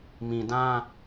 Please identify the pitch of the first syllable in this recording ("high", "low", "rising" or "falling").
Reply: low